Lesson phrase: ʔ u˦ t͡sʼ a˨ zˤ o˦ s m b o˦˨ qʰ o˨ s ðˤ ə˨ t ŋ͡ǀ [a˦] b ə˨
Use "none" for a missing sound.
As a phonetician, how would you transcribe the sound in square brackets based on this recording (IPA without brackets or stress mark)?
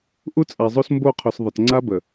a˦